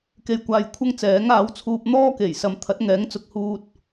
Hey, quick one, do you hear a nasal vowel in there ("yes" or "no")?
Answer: no